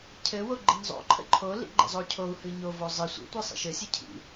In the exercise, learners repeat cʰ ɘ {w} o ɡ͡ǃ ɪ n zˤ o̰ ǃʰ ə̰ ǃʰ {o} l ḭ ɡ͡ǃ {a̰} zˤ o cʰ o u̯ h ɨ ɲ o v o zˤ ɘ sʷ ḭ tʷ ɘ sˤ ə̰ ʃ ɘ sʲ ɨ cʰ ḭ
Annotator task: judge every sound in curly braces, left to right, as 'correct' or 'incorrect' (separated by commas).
correct, correct, incorrect